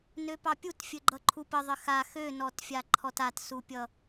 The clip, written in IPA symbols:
n ø p ɑ pʲ u t fʲ ɘ ɡ͡ǃ ʌ ǃʰ u p ə ðˤ ɘ x a x ø n ɔ t fʲ a ǃʰ ɔ t a t s u pʲ ʌ

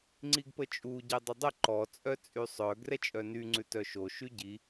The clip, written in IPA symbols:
ŋ͡ǀ i ɡ p ə t͡ʃʼ u ɟ ɛ dˤ ə dˤ ə ǃ ɔ t͡sʼ œ t͡sʼ y sˤ œ ɡ r ɛ t͡ʃʼ œ n y ŋ͡ǀ ʉ t œ ʃ o ʃ y ɟ i

